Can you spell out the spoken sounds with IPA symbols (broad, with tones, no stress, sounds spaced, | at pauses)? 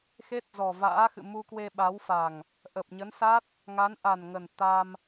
x e˦˥ t̚ z ɔ˨˩ v a̰ː˧˥ x ɨ̰˧˨ m u˧ k w e˧ ɓ a˨˦ w f a˨˩ ŋ | ʔ ə˨˩ p̚ ɲ ə˨˦ n s a˦˥ t̚ | ŋ a˨˦ n ʔ a˨˩ n ŋ ə˨˩ n t̪ a˧ m